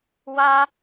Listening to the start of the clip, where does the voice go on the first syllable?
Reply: high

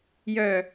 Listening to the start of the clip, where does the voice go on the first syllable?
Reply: falling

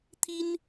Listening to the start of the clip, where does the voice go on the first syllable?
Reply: high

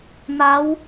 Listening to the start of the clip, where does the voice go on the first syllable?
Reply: rising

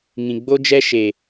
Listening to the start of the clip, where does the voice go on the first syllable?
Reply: low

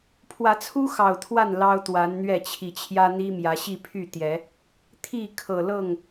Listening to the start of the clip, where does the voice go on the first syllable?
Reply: rising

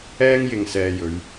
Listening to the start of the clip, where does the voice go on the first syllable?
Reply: high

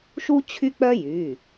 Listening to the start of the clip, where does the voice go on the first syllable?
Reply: high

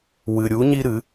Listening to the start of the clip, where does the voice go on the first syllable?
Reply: low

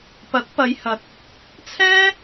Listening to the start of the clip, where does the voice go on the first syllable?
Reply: rising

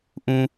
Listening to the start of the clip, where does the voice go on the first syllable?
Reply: low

